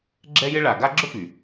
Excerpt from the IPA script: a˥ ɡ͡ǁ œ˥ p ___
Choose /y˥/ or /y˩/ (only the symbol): y˩